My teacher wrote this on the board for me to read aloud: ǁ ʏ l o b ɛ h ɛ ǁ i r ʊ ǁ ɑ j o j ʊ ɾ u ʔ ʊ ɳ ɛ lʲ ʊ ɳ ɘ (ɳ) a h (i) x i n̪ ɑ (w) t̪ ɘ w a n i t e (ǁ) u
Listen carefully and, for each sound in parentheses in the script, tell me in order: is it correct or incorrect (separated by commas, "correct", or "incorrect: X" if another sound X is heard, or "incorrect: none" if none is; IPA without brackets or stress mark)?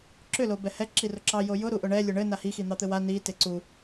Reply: incorrect: n, correct, incorrect: none, incorrect: ǀ